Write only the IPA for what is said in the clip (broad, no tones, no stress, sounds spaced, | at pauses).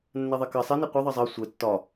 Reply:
nː ɛ ðˤ ɛ k ɜ sˤ e n e qʷ ɛ ðˤ ɜ zˤ ɜ sʷ ɛ tː ɒ